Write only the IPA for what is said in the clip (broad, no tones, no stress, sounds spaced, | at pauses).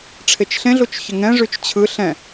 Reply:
ʈ͡ʂʰ e t͡ʃ ɬ ẽ ɮ u t͡ʃ ç ə ŋ ɛ̃ ʐ y t͡ʃ t͡ɕʰ ɯ ɬ ɛ̃